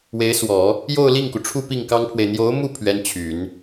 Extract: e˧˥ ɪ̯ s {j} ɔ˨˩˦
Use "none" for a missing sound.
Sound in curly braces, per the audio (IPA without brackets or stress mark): w